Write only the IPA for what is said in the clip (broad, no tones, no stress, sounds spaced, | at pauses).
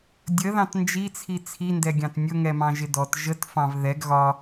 dʲ ə ð ɑ̃ t n d͡ʒ i t͡sʰ i t͡sʰ i n d ɛ ɡʲ ɑ̃ t nʲ ʊ ŋ ɛ m ɑ̃ ʒ ɪ d ɔ t ʒ ə t f ɑ̃ v ð ɛ ɡ ɣ ɒ